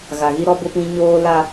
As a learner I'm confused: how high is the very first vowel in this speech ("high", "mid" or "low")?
low